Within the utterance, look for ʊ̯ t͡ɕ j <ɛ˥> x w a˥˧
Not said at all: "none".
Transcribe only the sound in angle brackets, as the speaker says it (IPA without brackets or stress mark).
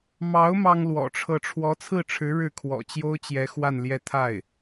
ɛ˧˥